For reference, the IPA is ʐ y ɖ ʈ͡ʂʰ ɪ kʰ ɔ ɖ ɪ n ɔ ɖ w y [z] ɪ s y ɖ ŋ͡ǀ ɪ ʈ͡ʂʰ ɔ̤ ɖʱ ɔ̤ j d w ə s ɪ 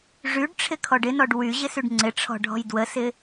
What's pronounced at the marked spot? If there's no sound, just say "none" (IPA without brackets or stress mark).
ʑ